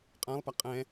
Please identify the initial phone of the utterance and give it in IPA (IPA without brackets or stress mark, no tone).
qʼ